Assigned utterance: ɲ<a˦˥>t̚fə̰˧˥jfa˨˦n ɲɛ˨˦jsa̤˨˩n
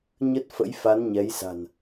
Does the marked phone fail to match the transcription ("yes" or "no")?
yes